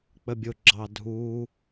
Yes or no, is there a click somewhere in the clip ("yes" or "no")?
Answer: yes